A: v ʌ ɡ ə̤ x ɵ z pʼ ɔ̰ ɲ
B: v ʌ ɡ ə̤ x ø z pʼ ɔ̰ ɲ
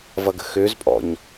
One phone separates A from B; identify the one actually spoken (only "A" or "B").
B